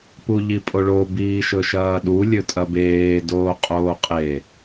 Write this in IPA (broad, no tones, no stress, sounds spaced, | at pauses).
p u ʎ i pʼ o ɭ o b iː ʃ ɵ ʃ ɐː ɗ u lʲ ɵ tʼ ɐ b eː d oː qʼ oː qʼ e